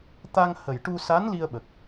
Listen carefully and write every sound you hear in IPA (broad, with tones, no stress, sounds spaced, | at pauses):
t̪ a˧ ŋ h ə˨˩ j ʈ u˧ s a˧˥ n l i˧ ə̯ ɓ ə˨˩ k̚